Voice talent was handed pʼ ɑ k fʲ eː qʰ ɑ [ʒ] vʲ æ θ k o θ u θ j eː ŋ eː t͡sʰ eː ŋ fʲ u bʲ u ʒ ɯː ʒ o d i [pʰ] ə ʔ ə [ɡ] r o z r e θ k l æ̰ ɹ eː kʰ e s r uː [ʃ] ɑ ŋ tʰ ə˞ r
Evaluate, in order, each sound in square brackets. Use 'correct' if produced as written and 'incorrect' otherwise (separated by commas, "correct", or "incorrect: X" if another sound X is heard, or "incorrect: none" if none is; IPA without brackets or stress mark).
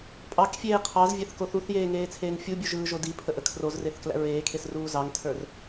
incorrect: z, correct, incorrect: kʰ, incorrect: z